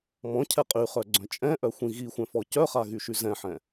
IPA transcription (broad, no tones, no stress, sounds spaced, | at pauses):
m ɔ̃ cʰ ɛ qʼ y χ œ ɡ͡ǀ œ̃ t͡ʃʼ ɛ̃ ʔ œ xʷ ĩ ɣ i xʷ ɛ̃ f ɔ c œ χ a ɣ y ʃ y z ɛ̃ ħ ɛ̃